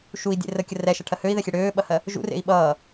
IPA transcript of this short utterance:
ʃui̯dʲḛ rəkʲər ɛʃɐʈʰɜ høi̯ðɛxʲe ɽøːɓɐhɜ | ʒṵrḛi̯ ɓʌː

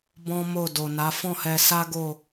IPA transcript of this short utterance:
bɔ̃˦mo˦˨ do˨ na˨˦ fɔ̃˦˨hɛ˧ sa˦ ɡo˦˨

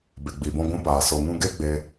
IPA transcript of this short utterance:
be˨ɡ͡bi˨bɔ̃˧ ɡʷũ˧paː˨ so˨ŋũ˧ɡe˦ ɡ͡be˧

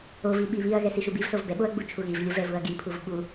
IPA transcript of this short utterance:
ovi ɓiβiɐ̯ɣɛ siʃubivsov bɛɓoɐ̯ ɡ͡but͡ʃʰuɣivlʲov ɛvuɐ̯ɡipʰuv ɓu

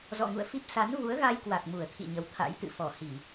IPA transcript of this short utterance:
zɔ̰˧˨ŋṵ˧˨ə̯fi˦˥p̚ sa˨˦nvu˨˦ə̯ɣa˧jkwa˨˩k̚ mu˧˩ə̯t̪ʰḭ˧˨ ɲə˨˦wt̪ʰa̰˧˥jt̪ɨ̰˧˨ fɔ˧˩hi˧˩˨

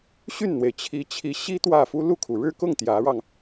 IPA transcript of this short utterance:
ɕy˥˩nn̪we˩ɪ̯t͡ɕʰi˧˥t͡ɕʰi˧˥ ɕi˥ t̪wä˥˩fu˥ lu˥˩kʰu˩ ɻɻ̩˥˧kʊ˥˩ŋ t̪jä˧˥ɻɑ˧ŋ

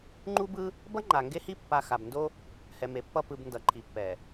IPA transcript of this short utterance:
ŋ͡ǃu˦bɯ˦ | bʌ˦ŋ͡ǃa˨ŋɡe˦hi˦ pːa˦ xa˨b ndo˦ | hɛ˨me˨pːʌ˦˨ pɯ˨b ndʌ˨ǃʰi˨pːɛ˨

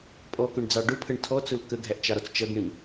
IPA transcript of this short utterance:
pʼɔkʊɳd͡zɑ ɖʊpʰəɳ tʰɔt͡sʊl kəɡʱæʔt͡ʃɑɾɔt͡s t͡ʃʌɡɳĩ

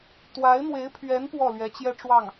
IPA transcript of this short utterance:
t̪wa˧˥ɪ̯n̪we˧˥ɪ̯pʰɥɛ˧˥n pwɔ˥˩lɥɛ˧˥t͡ɕjɛ˥ʈ͡ʂwɑ˥˩ŋ

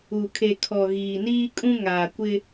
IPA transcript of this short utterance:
u˨kʰe˨ kʰɔ˨ ɣiː˨niː˦kʼũ˦ ŋaː˨kʷɪ˦

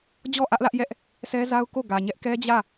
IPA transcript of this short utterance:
d͡ʑɔ˦˨ʔä˦ʔlä˦ʔ jɛ˦ʔ | sʰɛ˦za˦ʊ̯ko˦˨ ɡä˨ɲɛ˦ʔkɛ˦ d͡ʑä˦˨

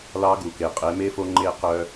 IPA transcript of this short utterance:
lɑ˧˥ɡu˩ke˩ qʼe˩˧me˧˥fo˧ ŋ͡ǃe˧ qœ˧

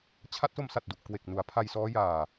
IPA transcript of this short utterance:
t͡ɕʰa˦˥t̚so˧msa˨˩t̚du˨˩ʔ kwe˨˩k̚nu˩˦a̯pʰa˧j sɔː˦˥jaː˨˩

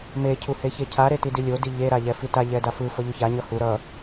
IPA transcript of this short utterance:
me cʰuheçecʰa ɾetidilʲo diʎe ɾaʎɛfita ʎɛdafɯ fʌʎuça ɲʌhu ɾʌ

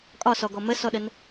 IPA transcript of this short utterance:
kʼɒsɔɡɔ məsɔɗən

